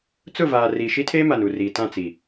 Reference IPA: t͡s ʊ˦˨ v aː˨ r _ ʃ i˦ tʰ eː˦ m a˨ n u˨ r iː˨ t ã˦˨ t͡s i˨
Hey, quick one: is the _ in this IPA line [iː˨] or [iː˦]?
iː˨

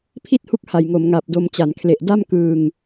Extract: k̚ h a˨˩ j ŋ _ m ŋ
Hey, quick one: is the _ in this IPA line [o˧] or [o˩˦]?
o˩˦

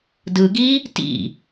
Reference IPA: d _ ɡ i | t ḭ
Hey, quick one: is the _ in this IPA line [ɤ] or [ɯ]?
ɯ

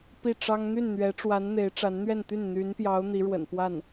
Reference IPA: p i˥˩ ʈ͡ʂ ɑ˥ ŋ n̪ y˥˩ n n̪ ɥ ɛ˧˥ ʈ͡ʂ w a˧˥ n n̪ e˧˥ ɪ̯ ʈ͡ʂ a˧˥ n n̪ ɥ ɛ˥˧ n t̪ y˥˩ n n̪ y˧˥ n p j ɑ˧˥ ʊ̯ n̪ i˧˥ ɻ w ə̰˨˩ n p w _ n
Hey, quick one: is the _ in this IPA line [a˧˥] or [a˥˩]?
a˥˩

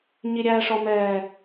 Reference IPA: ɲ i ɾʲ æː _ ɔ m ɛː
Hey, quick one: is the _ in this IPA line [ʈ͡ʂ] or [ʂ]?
ʂ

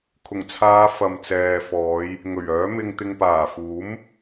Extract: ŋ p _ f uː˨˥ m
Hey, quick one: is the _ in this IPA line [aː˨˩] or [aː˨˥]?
aː˨˩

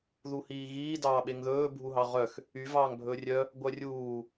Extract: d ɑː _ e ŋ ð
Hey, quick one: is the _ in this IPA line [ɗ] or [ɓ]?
ɓ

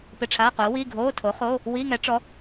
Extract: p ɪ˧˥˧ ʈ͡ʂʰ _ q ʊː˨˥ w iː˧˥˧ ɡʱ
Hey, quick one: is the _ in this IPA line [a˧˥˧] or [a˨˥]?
a˧˥˧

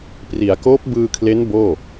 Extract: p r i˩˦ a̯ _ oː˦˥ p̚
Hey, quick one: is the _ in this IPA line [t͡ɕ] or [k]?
k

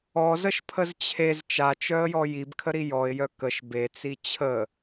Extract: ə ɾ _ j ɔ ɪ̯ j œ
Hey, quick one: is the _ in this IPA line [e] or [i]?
i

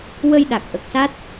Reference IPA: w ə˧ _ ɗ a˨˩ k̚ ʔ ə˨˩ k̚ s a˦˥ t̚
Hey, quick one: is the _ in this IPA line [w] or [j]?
j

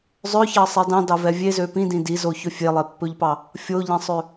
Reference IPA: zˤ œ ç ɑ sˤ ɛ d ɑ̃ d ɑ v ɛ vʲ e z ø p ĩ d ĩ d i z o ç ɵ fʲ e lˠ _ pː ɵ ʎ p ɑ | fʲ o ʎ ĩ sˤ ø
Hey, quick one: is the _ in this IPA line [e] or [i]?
e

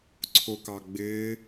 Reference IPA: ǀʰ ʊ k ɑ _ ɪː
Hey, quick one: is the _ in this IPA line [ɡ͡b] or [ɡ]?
ɡ͡b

